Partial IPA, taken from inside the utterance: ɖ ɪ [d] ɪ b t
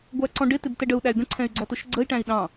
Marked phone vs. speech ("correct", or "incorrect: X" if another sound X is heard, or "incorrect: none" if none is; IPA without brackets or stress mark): incorrect: t